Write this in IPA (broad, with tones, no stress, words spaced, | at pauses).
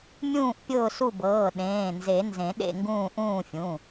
mʲũː˦˨ʔpʲʊː˦˨su˦˨bɤː˩˧˩ ɗẽː˩˧˩nze˨˩˦ nzẽ˨˩˦ɗḛ˦˨ŋɡũː˦˨ ʔũː˦˨fʲũ˩˧˩